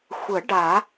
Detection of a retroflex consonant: present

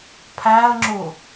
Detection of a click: present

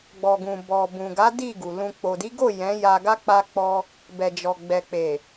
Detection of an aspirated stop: absent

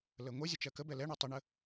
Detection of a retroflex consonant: present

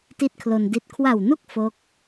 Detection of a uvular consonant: absent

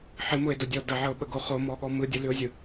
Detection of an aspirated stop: absent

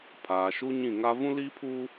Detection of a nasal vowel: present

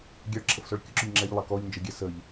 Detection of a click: present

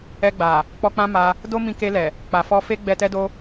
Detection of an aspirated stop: absent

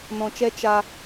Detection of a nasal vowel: present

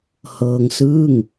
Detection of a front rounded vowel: absent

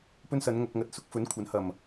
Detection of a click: absent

